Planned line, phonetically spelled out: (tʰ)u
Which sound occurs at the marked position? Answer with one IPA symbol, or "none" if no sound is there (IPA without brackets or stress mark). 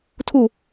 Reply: tʰ